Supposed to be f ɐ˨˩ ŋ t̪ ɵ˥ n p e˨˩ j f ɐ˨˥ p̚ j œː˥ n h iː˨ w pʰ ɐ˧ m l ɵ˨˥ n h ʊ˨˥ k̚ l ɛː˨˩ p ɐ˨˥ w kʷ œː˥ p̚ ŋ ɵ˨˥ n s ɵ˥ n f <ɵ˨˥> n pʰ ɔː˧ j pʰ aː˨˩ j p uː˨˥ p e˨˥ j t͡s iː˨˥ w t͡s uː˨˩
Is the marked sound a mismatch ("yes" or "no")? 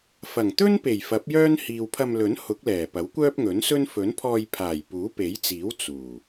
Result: no